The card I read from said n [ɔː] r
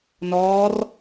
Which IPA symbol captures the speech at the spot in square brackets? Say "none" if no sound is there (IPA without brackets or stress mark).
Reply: ɔː